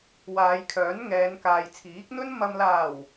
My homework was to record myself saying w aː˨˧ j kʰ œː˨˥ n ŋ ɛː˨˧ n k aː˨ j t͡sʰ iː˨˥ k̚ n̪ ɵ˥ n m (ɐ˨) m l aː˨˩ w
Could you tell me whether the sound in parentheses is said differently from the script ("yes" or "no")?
no